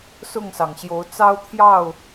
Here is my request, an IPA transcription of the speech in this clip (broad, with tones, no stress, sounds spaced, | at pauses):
s ʊ˥˨ ŋ s ɑ˩ ŋ ɕ j o˨˦ ʊ̯ t͡s ɑ˦ ʊ̯ t̪ʰ j ɑ˥˨ ʊ̯